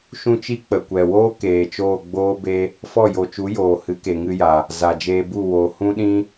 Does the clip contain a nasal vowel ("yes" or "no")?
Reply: yes